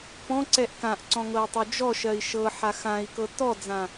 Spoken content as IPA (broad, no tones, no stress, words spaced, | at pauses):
pɔ̃ǀɛʔ kãʔǀɔ̃ ŋɤi̯tˤød͡ʒɔʃɜi̯ ʃɤ ħaxãi̯kɤ tɔd͡zã